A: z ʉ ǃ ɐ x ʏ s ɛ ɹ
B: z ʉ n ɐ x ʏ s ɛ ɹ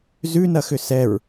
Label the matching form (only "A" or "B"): B